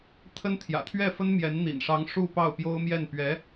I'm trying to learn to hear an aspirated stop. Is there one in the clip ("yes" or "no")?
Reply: yes